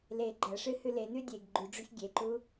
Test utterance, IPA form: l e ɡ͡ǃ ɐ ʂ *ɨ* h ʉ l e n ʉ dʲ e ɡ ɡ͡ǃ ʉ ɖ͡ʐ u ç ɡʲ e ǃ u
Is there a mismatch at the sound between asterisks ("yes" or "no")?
no